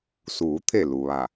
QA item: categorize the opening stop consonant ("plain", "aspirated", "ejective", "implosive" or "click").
aspirated